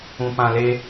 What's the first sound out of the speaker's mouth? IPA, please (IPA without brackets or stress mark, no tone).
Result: ũ